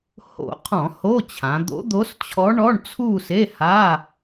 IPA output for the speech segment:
h o̰˧˩˧ qʰ ɔ̃˧˩˧ h o˧˥˧ t͡ɕʰ ã˩˧ d̪ o̰˧˥ d̪ o˧˥ s t͡ɕʰ ɔ˧˥ ɳ ɔ˧˥˧ ɳ t͡sʰ u˥˧ s e˧˥˧ h a˧˥˧

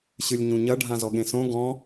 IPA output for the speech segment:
ɕ ɨ lʲ ɲ ũ ɲ ɐ ɖʱ ã z ɔ ɠ ẽ s õ ɡ ɔ̃

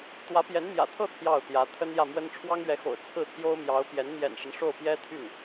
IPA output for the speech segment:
t̪ w ä˧˥ p j ɛ˧˥ n m j ä̰˨˩ t̪ʰ ɤ˥˧ t̪ʰ j ɑ˥˩ ʊ̯ t̪ j ä˧˥ t̪ʰ ə˥ n j ä˥˩ m w ə˥ n ʈ͡ʂʰ w ɑ˥ ŋ ɥ ɛ˧˥ x o̰˨˩ ʊ̯ t͡sʰ ɹ̩˥˩ t̪ʰ j o˥ ʊ̯ m j ɑ˧˥ ʊ̯ p j ɛ˧˥ n m j ɛ̰˨˩ n ʂ ə˦ n ʂ o˥˩ ʊ̯ p j ɛ˥ t̪ʰ y˥˩ n

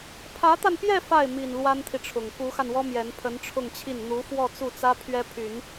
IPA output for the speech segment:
pʰ ä˧˥ t̪ a˧ n p j ɛ˥˧ f a˥˩ ɪ̯ m i˨˩ n l w a˥ n t̪ʰ i˨ ʈ͡ʂʰ ʊ˨˩ ŋ k u˧˥ x a˧ n w ɔ˥ m j ɛ˧˥ n pʰ ə˧˥ n ʈ͡ʂʰ ʊ˥˧ ŋ t͡ɕʰ i˥˩ n n̪ u˧˥ f w ɔ˥˧ t͡s u˥˩ t͡s ä˥ pʰ ɥ ɛ˥ pʰ y˨˩˦ n

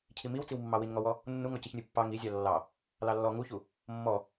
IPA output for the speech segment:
cʰ i m i w t͡s i w mː ɑ w i n ŋ ɔ w ɔ | nː u ŋ ɔ c i ç nʲ u pː ɑ ŋ i zʲ ɑ lː ɑ | l ɑ lː ɔ ŋ u ç u | mː ɔ

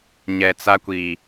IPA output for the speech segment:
ɲ ɛ˨ t͡s a˦ kʷ i˨

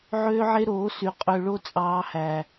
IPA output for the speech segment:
ʕ øː˦ ʕ e˦ ɾ oː˨˦ s y˨ qʼ ø˧ ɭ o˦ t͡sʼ ɑː˦ h æ˧

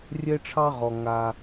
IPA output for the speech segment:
rʲ ɛ˦ ʈ͡ʂʰ ɑ˦ ʁ ɔ˩ ŋ a˨

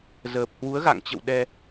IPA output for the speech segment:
z əː˨˩ p̚ h w u˨˦ ə̯ ɣ a̰˧˨ ŋ t͡ɕ ə̰˧˨ w ɗ ɛ˧

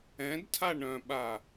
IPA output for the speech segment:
ɛ̃ d tʰ a ɳ œ̃ ɓ a

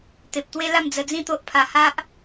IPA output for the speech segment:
t̪ e˨ p̚ t̪ w e˦ l a˥˧ m d͡z ə˧ d͡z ĩ˥˧ t̪ o˦ ʔ pʰ a˧ h a˦ ʔ

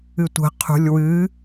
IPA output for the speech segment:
ɨ tʷ ə̤ qʰ ṳ lʲ w ɨ

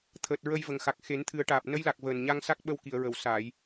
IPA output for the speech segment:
t̪ʰ əː˨˩ t̚ ɹ ə˧ j v ə˨˩ ŋ x a˨˩ k̚ x e˨˩˦ n t̪ʰ ɨ˨˩˦ ə̯ ʈ aː˨˩ p̚ n ə˧˥ j l a˨˩ k̚ v əː˨˩ n ɲ a˧ ŋ s a˦˥ k̚ ɓ ə˧˥ w k i˨˩˨ ə̯ ɹ ə˨˩˨ w s aː˨˩˨ j

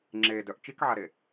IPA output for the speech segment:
ŋ͡ǁ e d œ ʔ t͡ʃ i k ʕ a ɾ e

